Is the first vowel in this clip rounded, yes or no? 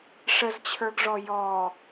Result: no